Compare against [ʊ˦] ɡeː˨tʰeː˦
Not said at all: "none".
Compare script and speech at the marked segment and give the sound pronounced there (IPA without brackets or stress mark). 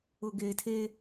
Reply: ʊ˨